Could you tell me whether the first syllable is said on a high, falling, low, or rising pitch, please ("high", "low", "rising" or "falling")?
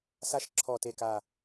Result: rising